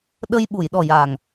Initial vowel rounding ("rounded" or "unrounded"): unrounded